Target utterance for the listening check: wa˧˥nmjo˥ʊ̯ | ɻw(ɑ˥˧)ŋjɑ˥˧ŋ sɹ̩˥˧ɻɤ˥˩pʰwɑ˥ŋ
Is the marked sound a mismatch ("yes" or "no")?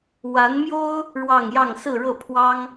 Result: no